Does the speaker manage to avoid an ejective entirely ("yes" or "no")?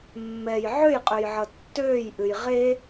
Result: no